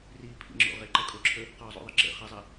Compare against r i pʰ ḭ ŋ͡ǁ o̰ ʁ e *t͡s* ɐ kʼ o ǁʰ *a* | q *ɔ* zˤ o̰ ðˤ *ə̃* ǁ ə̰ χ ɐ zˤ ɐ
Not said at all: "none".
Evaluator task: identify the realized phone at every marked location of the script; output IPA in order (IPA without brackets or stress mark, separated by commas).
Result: ǃ, ə, ɔ, ə